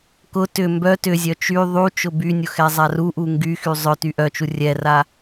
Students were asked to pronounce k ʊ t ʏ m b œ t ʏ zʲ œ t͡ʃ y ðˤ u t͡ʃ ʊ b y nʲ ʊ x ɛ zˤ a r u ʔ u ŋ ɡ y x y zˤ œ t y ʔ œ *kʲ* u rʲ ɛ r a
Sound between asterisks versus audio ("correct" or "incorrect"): incorrect